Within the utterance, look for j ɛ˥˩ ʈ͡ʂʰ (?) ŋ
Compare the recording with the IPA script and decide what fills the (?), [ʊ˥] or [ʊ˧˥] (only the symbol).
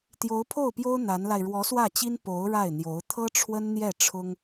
ʊ˥